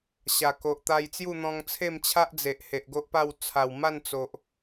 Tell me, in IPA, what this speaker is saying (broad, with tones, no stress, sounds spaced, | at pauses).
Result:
ɕ a˨˩ k o˨ ʔ t̪ a˧ j t͡s j u˥˧ n̪ ɔ̃˧ ŋ t͡sʰ e˥˧ m t͡ɕʰ a˦ ʔ d͡z e˨ ʔ h e˨ ʔ ɡ o˦ ʔ p a˥˧ w t͡sʰ a˨˩ w m a˥˧ n t͡s o˨ ʔ